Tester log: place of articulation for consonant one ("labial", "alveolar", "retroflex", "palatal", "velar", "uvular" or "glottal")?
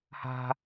glottal